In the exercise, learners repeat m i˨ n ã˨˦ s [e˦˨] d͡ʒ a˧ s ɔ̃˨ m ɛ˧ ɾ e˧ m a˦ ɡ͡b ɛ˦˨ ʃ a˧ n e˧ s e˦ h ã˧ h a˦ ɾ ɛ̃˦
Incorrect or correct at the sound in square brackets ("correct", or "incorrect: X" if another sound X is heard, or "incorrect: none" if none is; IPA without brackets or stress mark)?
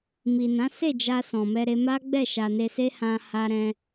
correct